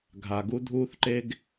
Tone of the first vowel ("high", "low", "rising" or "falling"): low